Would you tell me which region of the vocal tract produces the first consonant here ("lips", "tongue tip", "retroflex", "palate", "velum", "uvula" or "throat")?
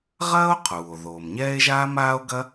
uvula